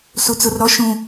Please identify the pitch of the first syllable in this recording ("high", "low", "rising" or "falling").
low